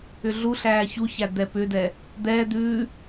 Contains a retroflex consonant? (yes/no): no